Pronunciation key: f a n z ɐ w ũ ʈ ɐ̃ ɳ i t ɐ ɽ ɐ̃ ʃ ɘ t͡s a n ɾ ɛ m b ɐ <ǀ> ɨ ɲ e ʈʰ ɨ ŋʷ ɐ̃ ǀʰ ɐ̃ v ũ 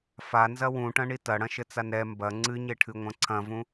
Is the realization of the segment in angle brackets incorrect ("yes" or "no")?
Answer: yes